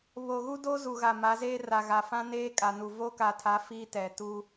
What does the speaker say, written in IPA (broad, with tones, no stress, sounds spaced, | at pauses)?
β o˨ ɣ u˦ d o˦ z u˨ ɣ a˨ m a˨˦ z eː˦ r a˨ ɣ a˨ f ã˦ n eː˦ kʼ a˨ n u˨ v o˦ k a˨ tʰ a˨˦ f iː˦ t ɛ˨ t u˦